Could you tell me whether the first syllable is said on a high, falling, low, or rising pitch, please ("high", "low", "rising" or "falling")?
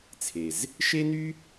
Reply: low